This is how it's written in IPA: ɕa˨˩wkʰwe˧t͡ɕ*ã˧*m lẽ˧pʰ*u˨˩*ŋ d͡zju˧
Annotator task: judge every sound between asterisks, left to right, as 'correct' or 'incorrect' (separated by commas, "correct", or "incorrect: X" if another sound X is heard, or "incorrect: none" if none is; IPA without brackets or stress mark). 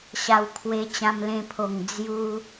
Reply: correct, incorrect: o˨˩